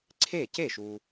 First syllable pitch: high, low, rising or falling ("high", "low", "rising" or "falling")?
falling